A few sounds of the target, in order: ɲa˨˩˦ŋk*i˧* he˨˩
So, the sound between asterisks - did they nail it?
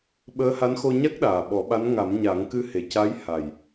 no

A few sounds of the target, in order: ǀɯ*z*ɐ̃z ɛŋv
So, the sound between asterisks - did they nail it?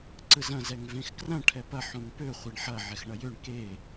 yes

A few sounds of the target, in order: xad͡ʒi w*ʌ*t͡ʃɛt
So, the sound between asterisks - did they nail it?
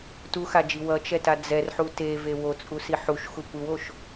yes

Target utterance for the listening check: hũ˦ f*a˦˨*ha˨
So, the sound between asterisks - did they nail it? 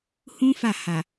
yes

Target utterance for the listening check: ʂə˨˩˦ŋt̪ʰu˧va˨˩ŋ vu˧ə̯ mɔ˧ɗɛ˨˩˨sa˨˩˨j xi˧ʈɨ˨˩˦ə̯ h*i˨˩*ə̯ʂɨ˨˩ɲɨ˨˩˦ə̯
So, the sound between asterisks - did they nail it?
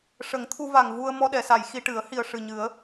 yes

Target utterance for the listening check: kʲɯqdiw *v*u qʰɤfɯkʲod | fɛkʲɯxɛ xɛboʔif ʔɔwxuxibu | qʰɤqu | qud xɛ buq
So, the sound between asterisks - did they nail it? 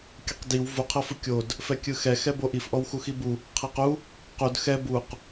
yes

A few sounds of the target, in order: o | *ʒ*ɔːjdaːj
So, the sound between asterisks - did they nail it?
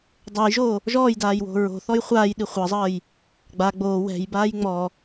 yes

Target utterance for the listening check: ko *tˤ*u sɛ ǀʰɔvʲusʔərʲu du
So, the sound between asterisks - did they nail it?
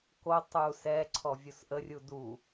yes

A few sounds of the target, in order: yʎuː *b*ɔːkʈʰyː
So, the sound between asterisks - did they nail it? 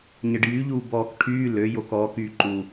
yes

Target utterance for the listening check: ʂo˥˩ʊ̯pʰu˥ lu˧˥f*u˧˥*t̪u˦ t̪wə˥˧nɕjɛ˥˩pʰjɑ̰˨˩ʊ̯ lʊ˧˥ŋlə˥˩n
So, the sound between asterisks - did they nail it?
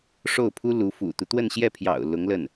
no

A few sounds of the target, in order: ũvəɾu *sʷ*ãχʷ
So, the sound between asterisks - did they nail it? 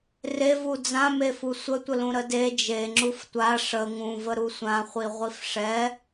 yes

